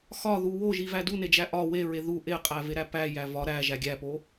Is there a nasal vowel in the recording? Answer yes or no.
no